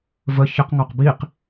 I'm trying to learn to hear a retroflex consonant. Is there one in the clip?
no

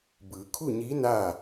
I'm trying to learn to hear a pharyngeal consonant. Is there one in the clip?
no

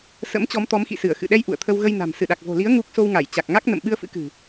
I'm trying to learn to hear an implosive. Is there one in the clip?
yes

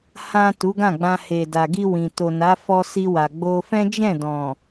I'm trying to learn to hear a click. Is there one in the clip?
no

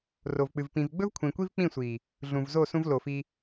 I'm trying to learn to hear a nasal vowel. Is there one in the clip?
yes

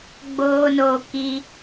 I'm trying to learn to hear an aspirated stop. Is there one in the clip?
no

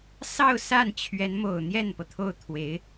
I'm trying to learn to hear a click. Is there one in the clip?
no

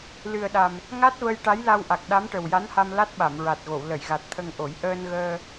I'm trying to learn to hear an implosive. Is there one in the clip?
yes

